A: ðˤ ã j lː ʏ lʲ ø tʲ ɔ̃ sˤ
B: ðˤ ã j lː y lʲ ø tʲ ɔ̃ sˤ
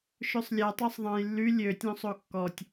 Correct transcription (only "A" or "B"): B